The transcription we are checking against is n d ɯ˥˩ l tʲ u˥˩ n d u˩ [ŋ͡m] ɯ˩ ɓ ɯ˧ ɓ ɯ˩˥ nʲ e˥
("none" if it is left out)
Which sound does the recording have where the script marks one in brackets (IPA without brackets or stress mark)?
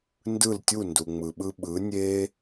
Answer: ŋ͡m